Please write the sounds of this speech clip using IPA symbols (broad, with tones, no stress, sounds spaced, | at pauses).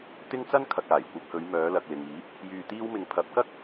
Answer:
t̪ ɪ˥ ŋ t͡s ɐ˥ n kʰ ɐ˨ k̚ aː˨˩ j kʷ ɐ˧ p̚ h ɵ˨˧ ɥ m œː˨˧ l ɐ˨ k̚ l ɪ˨ ŋ iː˨˥ p̚ | j yː˧ t̪ iː˥ w m ɪ˧ ŋ pʰ ɐ˨˥ p̚ k ɐ˥ k̚